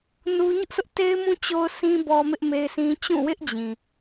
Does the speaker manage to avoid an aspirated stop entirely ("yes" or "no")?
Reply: yes